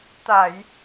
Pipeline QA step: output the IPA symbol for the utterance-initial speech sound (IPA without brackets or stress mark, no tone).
t̪